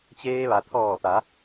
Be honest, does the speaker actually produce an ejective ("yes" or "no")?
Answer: no